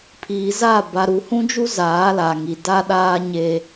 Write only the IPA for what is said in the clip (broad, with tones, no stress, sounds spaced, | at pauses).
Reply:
pʰ iː˨ z a˦˨ b a˨ ɾ u˨ h ũ˦ d͡ʒ u˦ z aː˨˦ l a˨ ŋ i˨ d a˦ ɗ aː˦ ɲ eː˦